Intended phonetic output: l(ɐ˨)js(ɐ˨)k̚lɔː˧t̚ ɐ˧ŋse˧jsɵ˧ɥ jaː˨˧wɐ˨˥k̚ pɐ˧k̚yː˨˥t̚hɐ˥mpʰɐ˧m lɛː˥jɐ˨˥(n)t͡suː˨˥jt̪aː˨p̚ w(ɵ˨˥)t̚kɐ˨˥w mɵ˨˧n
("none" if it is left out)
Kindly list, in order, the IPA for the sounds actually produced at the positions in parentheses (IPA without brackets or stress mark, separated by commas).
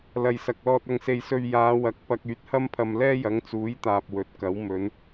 ɐ˨, ɐ˨, ŋ, ɵ˨˥